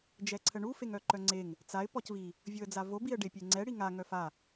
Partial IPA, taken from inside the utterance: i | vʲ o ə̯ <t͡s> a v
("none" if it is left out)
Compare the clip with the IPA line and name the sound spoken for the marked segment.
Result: d͡z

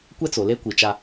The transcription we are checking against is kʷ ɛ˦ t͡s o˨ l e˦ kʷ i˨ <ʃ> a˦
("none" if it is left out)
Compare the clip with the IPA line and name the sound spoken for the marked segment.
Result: t͡ʃ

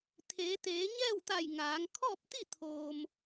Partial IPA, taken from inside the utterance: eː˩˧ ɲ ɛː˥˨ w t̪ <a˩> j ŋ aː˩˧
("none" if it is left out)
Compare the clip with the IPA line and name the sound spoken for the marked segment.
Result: a˧˩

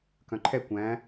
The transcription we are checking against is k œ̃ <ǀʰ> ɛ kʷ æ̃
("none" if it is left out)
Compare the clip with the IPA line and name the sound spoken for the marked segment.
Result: ǃʰ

